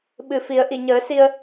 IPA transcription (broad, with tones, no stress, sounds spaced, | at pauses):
ɓ ɨ˨˩ f i˨˩˦ ə̯ ʔ i˨˩˨ ɲ əː˨˩˦ s i˧ ə̯